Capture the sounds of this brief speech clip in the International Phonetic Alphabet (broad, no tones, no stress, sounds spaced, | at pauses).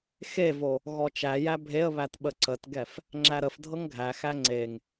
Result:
x e v o | ɣ ɔ t͡ʃ æ j æ bʱ e ə̯ β æ t ɓ ə ǀ ə t ɡ ɛ f | ŋ͡ǁ æ ɾ ə f dʱ ɤ ŋ ɡʱ æ x æ ŋ͡ǀ e ŋ